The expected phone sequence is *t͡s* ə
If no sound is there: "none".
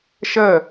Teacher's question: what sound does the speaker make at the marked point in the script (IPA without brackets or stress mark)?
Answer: ʃ